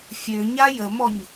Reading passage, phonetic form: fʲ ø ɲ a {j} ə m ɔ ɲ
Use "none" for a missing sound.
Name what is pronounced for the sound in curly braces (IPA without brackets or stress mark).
j